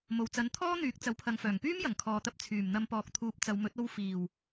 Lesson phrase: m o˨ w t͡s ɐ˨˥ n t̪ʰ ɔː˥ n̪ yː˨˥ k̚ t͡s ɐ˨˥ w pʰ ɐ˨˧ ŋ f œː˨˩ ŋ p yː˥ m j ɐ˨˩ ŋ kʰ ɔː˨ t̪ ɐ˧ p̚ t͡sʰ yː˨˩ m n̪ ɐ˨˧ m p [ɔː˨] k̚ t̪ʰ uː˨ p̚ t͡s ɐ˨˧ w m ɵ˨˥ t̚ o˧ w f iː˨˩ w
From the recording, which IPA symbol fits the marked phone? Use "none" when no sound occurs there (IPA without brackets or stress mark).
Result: ɔː˨